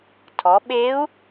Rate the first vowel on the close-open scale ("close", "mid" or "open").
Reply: mid